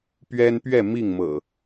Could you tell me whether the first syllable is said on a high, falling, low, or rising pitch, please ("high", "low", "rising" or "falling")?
high